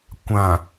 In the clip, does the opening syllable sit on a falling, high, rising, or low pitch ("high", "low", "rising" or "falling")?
low